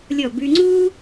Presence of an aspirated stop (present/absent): absent